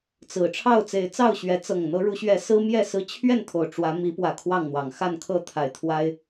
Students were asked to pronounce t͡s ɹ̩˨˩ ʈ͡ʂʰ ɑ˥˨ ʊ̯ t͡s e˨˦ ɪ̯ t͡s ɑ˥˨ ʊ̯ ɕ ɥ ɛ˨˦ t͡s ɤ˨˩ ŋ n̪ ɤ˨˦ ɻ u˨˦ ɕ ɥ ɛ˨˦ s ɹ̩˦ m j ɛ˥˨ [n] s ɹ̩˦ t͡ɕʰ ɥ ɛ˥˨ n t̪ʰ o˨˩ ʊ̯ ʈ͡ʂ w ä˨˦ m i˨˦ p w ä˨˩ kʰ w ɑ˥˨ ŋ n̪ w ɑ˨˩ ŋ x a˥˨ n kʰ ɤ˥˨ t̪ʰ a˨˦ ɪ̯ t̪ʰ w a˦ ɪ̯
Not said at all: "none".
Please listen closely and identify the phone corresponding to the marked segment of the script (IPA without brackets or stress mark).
none